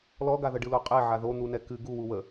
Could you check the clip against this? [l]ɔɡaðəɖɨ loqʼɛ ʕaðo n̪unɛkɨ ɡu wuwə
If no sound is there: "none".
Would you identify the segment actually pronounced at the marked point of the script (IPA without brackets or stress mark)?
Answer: l